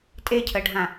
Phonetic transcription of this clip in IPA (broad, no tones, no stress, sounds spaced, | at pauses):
tʼ e cʰ ə ɖʱ ã